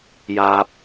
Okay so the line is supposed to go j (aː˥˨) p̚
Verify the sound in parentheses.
incorrect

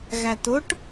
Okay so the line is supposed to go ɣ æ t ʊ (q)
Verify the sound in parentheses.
incorrect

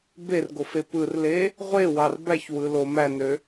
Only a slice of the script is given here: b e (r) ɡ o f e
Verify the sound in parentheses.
correct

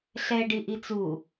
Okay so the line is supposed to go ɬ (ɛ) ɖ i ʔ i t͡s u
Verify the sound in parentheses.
correct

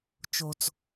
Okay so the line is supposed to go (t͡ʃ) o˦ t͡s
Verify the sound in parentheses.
correct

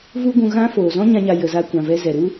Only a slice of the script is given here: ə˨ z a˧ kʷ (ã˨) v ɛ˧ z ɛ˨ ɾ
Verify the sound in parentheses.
correct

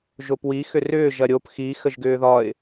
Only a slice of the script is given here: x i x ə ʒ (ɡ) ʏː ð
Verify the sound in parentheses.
correct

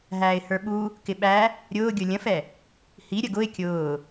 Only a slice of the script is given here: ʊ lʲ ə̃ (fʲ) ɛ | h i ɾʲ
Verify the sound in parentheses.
incorrect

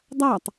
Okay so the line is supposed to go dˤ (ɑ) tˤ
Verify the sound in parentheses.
incorrect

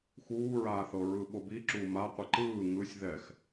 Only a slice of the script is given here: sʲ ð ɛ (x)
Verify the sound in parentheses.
correct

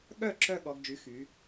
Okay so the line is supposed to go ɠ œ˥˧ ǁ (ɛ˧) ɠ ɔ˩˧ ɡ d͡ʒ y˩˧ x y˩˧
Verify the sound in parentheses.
incorrect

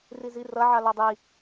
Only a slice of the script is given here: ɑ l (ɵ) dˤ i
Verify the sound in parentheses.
incorrect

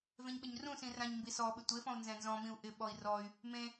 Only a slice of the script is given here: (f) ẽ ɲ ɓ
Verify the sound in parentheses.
incorrect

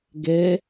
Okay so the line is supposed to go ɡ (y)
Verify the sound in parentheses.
incorrect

